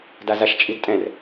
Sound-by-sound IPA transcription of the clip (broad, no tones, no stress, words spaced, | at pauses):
dazaʃt͡ʃʼidtʼɛ̃r